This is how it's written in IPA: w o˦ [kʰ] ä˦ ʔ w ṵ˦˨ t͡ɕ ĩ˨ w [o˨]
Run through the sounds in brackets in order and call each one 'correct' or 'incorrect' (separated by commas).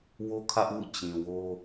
correct, incorrect